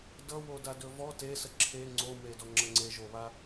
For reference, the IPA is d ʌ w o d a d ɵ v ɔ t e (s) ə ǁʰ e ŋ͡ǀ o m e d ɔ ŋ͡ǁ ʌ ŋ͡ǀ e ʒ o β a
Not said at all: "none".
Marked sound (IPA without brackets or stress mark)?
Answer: s